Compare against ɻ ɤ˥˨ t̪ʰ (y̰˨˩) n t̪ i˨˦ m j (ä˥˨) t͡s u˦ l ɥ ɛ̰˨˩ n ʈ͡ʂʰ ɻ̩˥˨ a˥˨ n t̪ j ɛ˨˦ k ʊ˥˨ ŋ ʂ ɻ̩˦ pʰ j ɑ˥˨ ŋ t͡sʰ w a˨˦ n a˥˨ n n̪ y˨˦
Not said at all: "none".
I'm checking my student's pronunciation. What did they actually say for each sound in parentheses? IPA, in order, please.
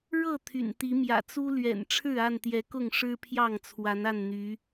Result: y̰˨˩, ä̰˨˩

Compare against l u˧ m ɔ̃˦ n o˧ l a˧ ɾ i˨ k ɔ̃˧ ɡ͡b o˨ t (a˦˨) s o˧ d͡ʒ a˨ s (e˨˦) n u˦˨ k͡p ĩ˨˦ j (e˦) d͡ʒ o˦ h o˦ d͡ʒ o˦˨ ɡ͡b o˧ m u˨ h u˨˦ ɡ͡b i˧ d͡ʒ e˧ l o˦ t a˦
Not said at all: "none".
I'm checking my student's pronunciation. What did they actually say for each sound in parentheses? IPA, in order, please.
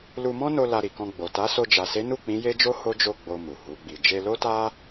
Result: a˨˦, e˨˦, e˦

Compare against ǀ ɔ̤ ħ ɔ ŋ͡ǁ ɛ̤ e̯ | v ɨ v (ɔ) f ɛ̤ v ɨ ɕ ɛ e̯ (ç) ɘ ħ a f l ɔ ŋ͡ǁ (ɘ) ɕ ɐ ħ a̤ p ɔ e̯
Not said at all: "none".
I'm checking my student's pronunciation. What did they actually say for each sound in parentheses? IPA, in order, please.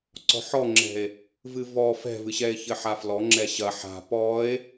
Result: ɔ, ç, ɛ

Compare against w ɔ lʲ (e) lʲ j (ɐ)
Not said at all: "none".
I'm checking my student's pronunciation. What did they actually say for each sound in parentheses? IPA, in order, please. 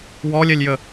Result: ɛ, ə

